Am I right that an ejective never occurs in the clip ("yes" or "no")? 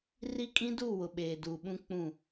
no